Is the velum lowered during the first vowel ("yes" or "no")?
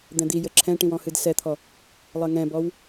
yes